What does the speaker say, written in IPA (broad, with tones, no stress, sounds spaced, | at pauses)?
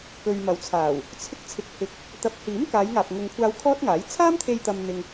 k ɵ˨ ɥ m ɐ˨˥ w t͡sʰ aː˨˩ w | t͡sʰ ɪ˧ k̚ t͡sʰ ɪ˨˥ k̚ h ɪ˨˥ k̚ | t̪ ɐ˨˥ p̚ h iː˨˥ m k aː˨˧ j ŋ aː˨ p̚ ŋ ʊ˨ ŋ kʷʰ aː˧ w kʰ ɔː˥ t̚ ŋ aː˨˥ j t͡sʰ aː˥ m t̪ʰ e˧ j t̪ ɐ˧ m n̪ ɪ˧ ŋ